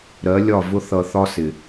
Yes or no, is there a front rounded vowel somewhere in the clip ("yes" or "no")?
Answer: no